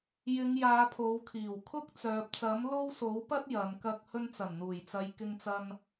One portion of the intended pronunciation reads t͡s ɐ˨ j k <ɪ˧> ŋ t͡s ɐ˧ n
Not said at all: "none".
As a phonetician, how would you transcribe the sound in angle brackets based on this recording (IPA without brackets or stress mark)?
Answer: ɪ˧